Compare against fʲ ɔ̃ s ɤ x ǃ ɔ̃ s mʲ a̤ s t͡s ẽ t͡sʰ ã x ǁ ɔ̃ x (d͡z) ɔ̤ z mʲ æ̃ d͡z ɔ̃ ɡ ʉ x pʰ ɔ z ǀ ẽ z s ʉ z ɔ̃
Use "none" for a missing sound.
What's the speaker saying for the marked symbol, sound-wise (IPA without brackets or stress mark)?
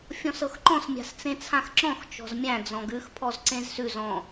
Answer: t͡ʃ